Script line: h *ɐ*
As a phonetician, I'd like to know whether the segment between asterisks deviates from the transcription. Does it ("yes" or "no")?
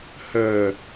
yes